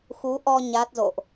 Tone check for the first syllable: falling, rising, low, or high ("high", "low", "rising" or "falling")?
rising